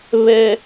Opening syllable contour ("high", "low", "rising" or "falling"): high